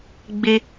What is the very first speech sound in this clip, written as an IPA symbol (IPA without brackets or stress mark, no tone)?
ɡ͡b